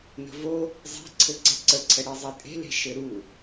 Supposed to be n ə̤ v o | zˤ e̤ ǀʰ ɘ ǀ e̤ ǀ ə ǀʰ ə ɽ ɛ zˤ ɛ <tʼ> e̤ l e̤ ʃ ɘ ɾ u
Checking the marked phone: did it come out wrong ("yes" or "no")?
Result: no